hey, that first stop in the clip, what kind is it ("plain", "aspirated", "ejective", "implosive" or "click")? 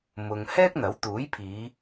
plain